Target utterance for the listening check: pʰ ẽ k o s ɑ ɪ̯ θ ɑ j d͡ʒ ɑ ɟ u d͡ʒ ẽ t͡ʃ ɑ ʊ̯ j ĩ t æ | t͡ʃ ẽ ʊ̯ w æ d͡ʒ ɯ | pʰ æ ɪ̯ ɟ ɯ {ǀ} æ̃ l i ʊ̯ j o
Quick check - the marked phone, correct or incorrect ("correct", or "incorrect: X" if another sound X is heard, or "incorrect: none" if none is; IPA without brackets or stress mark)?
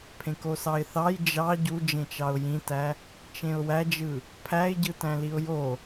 incorrect: t